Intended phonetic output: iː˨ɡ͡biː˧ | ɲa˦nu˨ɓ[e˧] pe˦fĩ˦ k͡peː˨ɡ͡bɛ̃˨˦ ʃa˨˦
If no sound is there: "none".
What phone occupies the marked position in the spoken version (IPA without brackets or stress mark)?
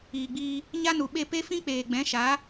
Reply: e˦˨